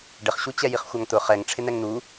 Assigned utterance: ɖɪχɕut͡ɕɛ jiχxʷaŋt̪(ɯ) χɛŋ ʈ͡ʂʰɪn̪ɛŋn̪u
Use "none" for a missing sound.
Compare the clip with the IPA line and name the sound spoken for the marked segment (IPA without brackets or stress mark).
ʊ